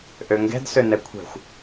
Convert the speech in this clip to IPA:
ʔ ø ŋ ɡ ɛ̤ d s ø n ɛ kʷʰ ɛ̤ xʷ

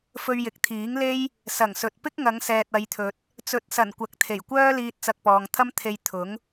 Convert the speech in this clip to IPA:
f ɵ˧ ɥ j ɪ˨ k̚ t̪ʰ iː˨˥ ŋ l e˥ j | s ɐ˨˩ ŋ s ɵ˨ t̚ p ɪ˥ k̚ ŋ ɐ˨˧ ŋ s ɛː˨ t̚ ɐ˨˧ j t̪ʰ ɵ˨ t̚ | t͡s ɵ˨˥ t̚ s ɐ˨˩ n kʷ ɐ˨ k̚ t̪ʰ e˨˩ j kʷ œː˥ l iː˧ t̚ t͡s ɐ˧ k̚ p ɔː˨ ŋ t̪ʰ ɐ˥ m t̪ʰ e˧ j t̪ʰ ʊ˨˥ ŋ

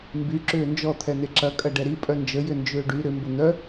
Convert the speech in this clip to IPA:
m b y ǁ ʏː n d͡ʒ ɔ t̪ʰ ɛ n̪ e ǁ ɐ kʼ ɐ ɖ ɛ ɾ i pʼ œ n d͡ʒ ə j ʏ n d͡ʒ ʏː ɖ y ɾ ʏ m b ʊ n̪ œ

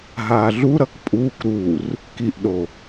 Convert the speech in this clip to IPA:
ɦ aː ɮ u ɾ ʌ k pʼ uː k ɾ uː r | k i ʔ ɗ o

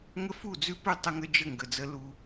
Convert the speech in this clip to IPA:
ŋ ə˦ f u˦˨ d͡z ʉ˦ p ʉ˦˨ tˤ ə˦ ŋ ə˦ d͡ʒ ə˦˨ ŋ ɡ ə˨ d͡z ə˦ l u˦

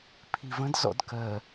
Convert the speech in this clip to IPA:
pʰ i v ə̃ d z ɔ̰ d k ɜ

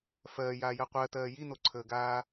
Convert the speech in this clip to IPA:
f ɜː j aː j ɜ qʷ ɜ t ɜː j i n o ǀʰ əː ɡ aː

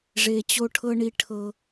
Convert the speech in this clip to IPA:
ʐ e˦ t͡ɕ o˥ ʈʰ ɤ˥ ɳ i˦ ʈʰ ɤ˦

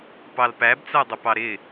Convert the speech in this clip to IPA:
p ɑ l p æ b t͡s æ dˤ ə p ɑ ɾ ɪ

